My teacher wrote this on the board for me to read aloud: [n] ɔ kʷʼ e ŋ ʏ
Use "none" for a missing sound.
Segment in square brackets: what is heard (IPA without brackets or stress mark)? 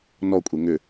n